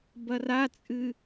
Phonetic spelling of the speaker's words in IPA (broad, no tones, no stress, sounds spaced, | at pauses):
b ɐ r a t͡sʼ ɨ